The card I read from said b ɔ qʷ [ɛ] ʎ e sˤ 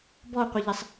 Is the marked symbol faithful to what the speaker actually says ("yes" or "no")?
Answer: no